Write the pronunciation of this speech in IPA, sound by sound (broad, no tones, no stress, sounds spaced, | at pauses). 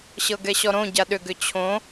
ɕ ɤ ɡ ɛ ɕ ɔ ɾ õ ɟ a ɗ ʏ ɡ ʏ t͡ɕʰ õ